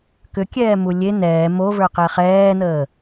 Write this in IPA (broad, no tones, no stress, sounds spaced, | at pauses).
k ʏ kʲ ɛː m u lʲ e n̪ ɛː m o v ə˞ q ɛ χ ɛː n̪ əː